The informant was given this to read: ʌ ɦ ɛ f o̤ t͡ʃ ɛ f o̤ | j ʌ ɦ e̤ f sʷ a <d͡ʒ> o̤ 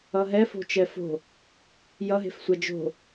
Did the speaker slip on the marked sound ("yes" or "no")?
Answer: no